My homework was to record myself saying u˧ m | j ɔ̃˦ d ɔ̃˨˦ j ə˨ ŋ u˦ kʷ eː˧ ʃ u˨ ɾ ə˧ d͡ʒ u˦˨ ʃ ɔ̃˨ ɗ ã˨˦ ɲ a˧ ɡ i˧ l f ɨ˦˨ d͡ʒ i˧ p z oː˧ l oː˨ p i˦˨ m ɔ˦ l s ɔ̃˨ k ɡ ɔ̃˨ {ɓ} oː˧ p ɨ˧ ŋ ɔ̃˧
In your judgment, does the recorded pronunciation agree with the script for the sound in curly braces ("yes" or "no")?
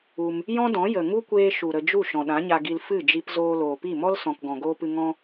no